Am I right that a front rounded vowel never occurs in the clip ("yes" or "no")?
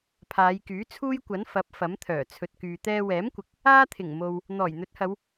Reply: no